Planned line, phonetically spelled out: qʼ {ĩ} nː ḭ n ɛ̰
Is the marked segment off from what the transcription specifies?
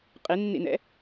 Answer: yes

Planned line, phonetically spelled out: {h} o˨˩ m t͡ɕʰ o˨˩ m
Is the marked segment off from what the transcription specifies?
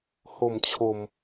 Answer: no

